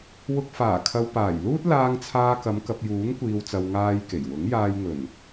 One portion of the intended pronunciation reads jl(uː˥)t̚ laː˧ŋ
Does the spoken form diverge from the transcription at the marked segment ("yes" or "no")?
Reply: no